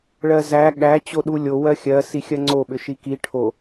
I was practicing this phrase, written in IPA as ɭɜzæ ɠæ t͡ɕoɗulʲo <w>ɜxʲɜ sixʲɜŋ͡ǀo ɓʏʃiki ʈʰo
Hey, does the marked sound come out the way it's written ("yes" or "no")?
yes